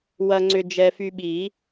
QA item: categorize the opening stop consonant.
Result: click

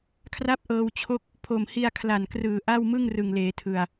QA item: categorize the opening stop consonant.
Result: aspirated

